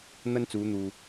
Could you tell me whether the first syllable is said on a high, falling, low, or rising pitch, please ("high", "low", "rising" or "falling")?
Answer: high